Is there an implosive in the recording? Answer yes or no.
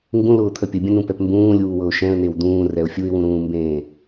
no